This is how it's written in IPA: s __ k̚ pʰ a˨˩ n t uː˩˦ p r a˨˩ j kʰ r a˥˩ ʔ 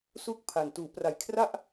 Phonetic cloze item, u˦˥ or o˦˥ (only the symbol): u˦˥